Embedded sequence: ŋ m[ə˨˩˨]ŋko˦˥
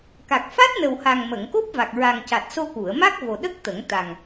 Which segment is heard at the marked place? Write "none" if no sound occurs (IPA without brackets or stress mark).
ə˨˩˨